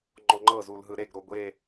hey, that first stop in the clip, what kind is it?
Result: click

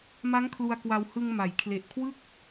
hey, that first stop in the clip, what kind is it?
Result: aspirated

